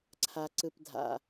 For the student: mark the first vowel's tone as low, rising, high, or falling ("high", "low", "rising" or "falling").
low